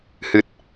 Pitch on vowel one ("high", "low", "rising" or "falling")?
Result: low